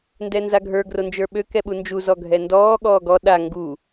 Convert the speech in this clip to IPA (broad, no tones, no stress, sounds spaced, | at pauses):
n d ɛ n z a ɡʱ ə˞ ɡ r o n d͡ʒ ə˞ ɓ ø k ɛ ɓ u n d͡ʒ u z ɔ ɡʱ ɛ n d ɔː ɠ ɔː ɡ ɔ ɗ a ŋ ɡ u